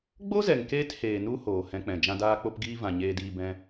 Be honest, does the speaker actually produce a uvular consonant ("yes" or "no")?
no